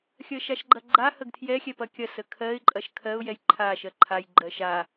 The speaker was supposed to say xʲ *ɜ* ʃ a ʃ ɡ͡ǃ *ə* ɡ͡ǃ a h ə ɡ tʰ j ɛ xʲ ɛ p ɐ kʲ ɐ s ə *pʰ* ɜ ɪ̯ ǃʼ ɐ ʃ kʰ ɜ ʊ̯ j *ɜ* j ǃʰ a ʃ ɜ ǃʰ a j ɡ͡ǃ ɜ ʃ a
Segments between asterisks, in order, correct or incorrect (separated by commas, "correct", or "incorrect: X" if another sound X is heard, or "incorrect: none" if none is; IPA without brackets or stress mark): correct, incorrect: ɐ, incorrect: kʰ, incorrect: ɛ